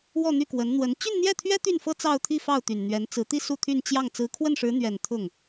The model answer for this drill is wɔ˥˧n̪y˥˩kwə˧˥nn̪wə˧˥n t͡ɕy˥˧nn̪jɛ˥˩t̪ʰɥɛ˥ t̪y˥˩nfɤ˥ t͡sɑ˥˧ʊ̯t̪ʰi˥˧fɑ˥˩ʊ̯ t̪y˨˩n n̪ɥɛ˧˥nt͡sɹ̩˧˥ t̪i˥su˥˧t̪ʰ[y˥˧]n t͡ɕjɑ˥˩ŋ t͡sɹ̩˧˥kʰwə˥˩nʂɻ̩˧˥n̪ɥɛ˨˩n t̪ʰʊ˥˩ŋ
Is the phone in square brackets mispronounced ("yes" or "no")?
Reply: no